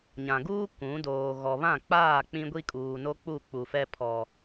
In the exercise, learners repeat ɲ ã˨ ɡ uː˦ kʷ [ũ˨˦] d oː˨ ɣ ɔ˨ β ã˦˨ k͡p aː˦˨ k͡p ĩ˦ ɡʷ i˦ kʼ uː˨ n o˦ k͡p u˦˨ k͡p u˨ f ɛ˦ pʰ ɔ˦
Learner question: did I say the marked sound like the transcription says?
yes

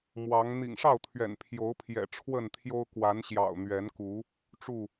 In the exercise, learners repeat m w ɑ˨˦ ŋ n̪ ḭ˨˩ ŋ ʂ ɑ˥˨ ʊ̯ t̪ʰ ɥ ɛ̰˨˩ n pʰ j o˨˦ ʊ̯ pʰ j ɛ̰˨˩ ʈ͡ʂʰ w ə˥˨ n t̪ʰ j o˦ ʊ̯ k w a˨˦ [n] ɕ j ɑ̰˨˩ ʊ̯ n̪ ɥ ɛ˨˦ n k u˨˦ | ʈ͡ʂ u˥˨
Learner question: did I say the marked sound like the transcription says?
yes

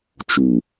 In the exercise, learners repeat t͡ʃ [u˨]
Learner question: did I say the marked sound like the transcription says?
yes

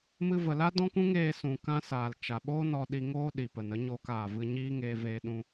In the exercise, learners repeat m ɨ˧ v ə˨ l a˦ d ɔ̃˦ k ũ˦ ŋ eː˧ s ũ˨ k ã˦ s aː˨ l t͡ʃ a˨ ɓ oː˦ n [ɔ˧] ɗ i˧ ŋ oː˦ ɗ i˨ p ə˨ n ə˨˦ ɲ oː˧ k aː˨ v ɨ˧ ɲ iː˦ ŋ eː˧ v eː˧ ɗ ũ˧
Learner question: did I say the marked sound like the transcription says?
yes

